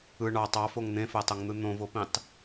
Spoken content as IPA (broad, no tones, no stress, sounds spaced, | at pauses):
ɯ ɳ ɑ tˤ ɑ f o ŋ n̪ ẽ f æ tˤ o ŋ n̪ ɯ n̪ õ v o p ĩ tˤ